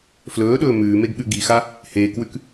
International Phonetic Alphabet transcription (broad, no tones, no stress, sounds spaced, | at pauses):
f l ɵː ɗ ɵː m ʉː m e ɡ ɠ ʉ ɡ i x a | h eː k w ʉ k